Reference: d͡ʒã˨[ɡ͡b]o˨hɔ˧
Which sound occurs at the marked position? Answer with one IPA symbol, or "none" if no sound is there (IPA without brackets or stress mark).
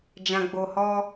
ɡ͡b